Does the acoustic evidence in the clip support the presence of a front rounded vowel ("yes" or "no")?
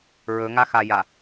no